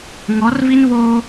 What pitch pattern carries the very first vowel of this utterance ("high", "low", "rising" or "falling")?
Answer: rising